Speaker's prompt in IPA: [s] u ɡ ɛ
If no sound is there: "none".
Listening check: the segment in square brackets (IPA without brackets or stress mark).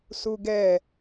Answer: s